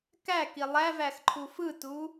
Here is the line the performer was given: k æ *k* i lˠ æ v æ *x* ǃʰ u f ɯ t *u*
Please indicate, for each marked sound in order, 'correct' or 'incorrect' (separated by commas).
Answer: correct, correct, correct